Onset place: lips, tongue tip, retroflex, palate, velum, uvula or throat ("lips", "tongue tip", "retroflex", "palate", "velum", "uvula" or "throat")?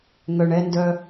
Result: velum